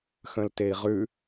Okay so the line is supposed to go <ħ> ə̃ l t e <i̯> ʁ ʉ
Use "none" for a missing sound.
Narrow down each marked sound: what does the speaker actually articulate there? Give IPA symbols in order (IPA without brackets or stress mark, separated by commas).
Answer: x, i̯